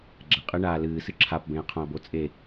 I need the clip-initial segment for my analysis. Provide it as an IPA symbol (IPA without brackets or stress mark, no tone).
ɡ͡ǁ